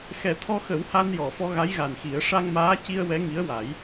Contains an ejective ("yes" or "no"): no